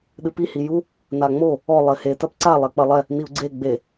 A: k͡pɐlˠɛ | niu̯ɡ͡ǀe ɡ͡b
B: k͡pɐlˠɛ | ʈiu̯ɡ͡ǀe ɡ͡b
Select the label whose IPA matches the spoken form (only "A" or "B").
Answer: A